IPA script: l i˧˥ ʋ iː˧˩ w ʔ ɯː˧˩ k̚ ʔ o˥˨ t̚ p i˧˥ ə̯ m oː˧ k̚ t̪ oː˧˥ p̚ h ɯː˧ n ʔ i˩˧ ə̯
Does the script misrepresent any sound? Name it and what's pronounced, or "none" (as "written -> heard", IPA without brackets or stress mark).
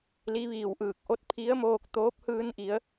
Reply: p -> pʰ